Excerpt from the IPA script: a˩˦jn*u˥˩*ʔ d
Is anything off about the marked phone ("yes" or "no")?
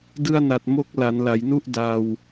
no